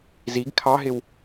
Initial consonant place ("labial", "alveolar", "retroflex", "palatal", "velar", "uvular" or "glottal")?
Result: alveolar